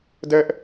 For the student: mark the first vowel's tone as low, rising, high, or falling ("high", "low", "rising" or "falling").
high